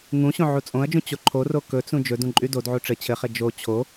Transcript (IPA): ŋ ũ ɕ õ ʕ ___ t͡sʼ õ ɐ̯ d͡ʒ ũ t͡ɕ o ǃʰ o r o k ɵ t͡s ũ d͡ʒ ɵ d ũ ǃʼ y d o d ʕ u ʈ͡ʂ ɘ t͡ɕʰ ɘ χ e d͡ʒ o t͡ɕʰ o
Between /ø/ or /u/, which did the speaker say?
u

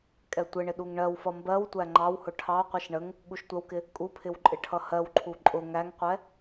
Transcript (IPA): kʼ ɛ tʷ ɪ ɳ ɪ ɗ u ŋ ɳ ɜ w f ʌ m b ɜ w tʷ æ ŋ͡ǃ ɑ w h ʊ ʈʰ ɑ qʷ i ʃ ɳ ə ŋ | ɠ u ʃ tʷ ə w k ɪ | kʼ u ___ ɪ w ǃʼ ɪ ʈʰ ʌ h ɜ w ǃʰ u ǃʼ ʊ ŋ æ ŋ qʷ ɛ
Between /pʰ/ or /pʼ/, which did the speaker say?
pʰ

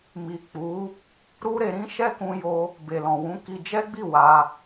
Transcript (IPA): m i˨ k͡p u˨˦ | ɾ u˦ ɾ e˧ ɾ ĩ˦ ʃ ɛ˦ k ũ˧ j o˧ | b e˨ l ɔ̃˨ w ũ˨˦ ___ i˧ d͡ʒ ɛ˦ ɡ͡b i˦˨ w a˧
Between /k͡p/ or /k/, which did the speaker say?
k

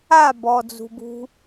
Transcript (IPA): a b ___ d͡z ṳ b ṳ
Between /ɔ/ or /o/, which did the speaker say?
ɔ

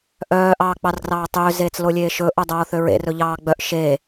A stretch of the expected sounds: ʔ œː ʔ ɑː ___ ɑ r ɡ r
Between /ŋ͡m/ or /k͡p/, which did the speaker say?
k͡p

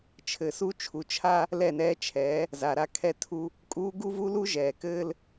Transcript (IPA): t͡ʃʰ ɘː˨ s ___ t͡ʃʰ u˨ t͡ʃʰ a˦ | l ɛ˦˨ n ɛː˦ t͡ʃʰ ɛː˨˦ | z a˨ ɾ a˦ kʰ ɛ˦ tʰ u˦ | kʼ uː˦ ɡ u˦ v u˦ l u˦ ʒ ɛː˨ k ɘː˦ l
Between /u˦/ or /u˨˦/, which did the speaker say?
u˦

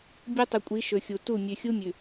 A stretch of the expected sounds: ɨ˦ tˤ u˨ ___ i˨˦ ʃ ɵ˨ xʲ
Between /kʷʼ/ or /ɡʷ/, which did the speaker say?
kʷʼ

